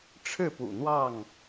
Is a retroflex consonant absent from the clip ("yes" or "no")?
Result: no